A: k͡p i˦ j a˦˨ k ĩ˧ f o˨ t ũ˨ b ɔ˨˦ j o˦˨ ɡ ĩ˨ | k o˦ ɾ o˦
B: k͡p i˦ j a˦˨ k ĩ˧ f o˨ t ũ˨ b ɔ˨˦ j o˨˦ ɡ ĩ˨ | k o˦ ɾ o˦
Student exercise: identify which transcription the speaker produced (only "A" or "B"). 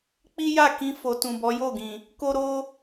A